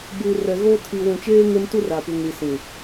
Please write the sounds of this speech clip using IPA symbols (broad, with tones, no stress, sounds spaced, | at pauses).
b uː˨ r ɛ˨ ɣ o˦ tʰ i˨ w ũ˨ t͡ʃ eː˦ ŋ e˦ m t u˦ r a˨ p u˨ ŋ ɾ i˨ s ĩ˨